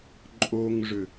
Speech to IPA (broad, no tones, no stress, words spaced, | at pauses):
ǃʼoŋʐʏ